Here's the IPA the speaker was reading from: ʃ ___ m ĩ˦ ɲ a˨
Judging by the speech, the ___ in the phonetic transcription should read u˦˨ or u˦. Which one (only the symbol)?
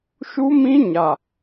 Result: u˦